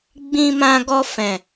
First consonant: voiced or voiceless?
voiced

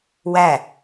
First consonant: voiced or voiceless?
voiced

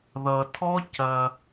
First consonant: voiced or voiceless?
voiced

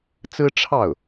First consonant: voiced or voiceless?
voiceless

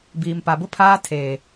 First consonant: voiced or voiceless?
voiced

